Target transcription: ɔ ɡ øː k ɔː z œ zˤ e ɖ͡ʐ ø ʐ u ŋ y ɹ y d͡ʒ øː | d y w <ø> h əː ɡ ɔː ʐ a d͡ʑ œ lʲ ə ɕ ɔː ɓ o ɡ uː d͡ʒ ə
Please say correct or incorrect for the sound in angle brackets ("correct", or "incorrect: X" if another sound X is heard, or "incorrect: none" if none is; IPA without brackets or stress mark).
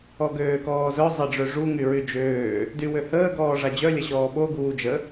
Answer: correct